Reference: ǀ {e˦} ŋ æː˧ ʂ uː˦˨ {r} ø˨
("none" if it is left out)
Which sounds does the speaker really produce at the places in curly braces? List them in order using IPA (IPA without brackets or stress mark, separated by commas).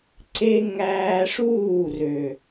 e˦, r